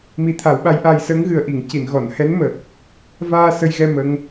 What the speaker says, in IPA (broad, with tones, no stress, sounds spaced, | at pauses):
m i˧˥ t̪ʰ a˨˩˦ w ɓ a˧˥ j ʔ aː˧ j s əː˧˥ ŋ ɣ ɨ˨˩ ə̯ ʔ i˨˩˨ ŋ c i˨˩˨ n ɣ ɔ˨˩˨ n h ɛ˧˥ n m əː˨˩ k̚ | v aː˧ s ə˧ j ɣ ɛ˧ m ə˧˥ ŋ